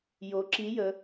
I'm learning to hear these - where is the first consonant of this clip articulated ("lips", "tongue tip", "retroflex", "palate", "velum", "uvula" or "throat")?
palate